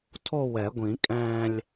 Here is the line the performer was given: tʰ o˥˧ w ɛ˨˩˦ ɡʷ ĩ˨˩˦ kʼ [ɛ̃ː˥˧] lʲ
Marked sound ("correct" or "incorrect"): correct